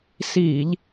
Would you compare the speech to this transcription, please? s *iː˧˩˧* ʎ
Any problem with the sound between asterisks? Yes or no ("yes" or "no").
no